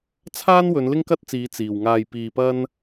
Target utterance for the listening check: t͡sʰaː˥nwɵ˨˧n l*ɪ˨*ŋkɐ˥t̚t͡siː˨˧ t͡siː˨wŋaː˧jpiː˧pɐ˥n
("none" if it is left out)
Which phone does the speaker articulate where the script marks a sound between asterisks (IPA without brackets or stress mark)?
ɪ˥